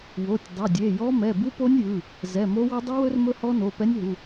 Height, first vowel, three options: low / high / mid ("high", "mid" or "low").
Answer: mid